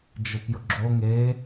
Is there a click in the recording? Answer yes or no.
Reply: yes